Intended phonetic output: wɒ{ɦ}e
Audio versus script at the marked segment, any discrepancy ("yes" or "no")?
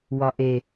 yes